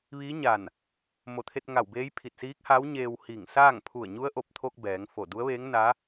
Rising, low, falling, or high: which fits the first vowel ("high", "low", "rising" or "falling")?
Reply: rising